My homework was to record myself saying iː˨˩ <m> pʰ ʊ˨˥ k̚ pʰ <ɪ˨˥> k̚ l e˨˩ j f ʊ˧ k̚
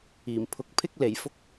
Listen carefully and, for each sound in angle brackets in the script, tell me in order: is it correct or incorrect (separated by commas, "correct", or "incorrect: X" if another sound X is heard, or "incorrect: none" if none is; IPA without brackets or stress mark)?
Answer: correct, incorrect: ɪ˧